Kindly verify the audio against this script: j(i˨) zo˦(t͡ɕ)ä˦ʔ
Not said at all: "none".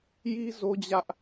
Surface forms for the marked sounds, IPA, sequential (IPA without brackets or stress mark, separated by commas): i˦, d͡ʑ